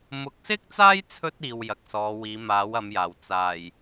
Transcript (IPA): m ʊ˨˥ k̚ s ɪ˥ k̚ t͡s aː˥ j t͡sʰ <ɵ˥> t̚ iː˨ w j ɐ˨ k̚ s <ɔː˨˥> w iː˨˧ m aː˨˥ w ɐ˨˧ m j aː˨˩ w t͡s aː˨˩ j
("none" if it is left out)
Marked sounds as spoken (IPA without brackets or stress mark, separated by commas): ɵ˥, ɔː˨˧